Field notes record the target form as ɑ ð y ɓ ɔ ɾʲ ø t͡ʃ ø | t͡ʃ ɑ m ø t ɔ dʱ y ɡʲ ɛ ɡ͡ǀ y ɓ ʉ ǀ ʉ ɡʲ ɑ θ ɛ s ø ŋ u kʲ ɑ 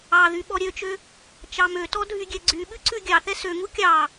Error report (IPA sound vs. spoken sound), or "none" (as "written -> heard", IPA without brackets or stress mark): none